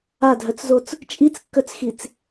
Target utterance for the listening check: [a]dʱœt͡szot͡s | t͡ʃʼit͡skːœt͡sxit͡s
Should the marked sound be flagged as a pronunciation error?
no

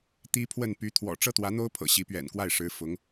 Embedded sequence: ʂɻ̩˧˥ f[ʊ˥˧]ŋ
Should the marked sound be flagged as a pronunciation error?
yes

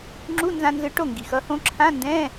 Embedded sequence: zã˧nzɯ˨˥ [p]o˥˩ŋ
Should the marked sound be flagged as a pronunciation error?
yes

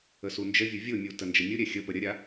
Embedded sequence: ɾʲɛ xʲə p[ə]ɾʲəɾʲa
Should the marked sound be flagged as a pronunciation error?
no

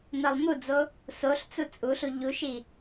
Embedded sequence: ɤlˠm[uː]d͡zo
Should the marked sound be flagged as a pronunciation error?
yes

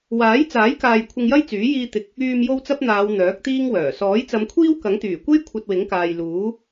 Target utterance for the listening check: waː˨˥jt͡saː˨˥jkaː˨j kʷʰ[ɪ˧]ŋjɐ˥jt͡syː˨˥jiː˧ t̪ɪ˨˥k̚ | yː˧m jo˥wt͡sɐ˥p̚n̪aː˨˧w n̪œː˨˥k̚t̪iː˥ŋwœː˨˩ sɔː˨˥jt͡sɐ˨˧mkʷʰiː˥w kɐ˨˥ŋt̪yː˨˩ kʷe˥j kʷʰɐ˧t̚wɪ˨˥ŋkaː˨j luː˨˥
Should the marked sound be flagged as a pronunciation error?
no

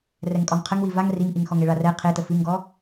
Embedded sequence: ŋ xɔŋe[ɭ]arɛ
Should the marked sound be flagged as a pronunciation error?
no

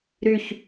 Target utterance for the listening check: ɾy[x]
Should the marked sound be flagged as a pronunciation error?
yes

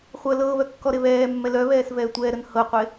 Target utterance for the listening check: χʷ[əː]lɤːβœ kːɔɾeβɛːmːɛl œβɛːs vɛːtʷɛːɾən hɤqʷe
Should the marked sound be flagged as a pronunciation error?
no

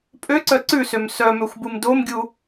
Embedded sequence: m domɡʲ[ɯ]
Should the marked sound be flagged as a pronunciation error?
yes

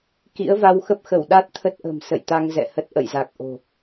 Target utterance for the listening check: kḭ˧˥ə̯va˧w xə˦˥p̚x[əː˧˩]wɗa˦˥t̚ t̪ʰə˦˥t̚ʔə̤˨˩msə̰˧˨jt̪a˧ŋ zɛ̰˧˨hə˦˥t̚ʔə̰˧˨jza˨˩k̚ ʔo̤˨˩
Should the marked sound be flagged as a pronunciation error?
yes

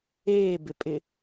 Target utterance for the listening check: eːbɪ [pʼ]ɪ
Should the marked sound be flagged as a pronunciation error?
no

